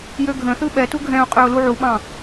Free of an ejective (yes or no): no